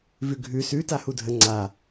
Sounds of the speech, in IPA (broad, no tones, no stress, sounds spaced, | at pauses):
v ʉ ɡʱ ʉ s ʉ t a h u dʱ ə ŋ͡ǀ a